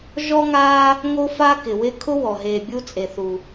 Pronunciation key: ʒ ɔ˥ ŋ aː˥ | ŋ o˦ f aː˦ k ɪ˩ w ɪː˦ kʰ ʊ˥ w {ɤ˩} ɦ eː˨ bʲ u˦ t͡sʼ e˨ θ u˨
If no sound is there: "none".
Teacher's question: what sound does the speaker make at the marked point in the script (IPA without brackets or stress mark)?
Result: ɔ˩